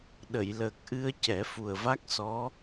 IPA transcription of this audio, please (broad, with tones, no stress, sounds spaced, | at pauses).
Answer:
ɗ ə˨˩˨ j l əː˨˩ k̚ ʔ ɨ˧ ə̯ c ɛ˨˩˦ f u˨˩ ə̯ v a˦˥ k̚ s ɔ˧˥